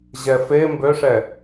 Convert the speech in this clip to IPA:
ʑ ɛ f e m b ø ʂ ɛ

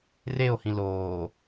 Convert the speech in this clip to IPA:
r e o̯ h ĩ l oː

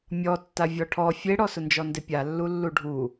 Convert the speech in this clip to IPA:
mʲ ɔ tː a vʲ ɔ ʈʰ ɔ fʲ e ɽ ɔ s ʊ n d͡ʒ ɔ n d ɪ pʲ a lː u lː u ɖʱ u

